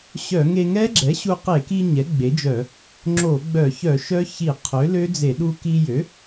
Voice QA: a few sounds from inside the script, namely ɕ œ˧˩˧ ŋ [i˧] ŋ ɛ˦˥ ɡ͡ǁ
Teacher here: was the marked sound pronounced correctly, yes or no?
no